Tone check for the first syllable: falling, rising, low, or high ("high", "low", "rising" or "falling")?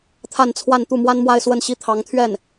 falling